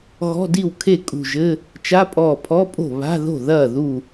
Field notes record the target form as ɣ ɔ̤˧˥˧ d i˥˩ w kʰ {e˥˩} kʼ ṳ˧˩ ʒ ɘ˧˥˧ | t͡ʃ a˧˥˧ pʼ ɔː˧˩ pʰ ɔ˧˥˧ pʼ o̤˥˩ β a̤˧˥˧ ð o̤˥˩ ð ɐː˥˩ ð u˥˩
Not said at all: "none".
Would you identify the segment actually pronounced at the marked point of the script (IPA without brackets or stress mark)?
e˥˩